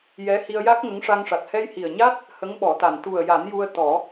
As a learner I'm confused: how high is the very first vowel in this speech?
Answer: mid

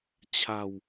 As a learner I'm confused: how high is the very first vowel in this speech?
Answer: low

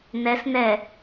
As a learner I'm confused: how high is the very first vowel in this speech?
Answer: mid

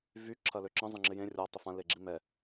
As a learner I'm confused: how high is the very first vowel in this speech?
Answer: high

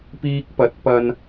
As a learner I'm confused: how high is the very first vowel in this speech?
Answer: high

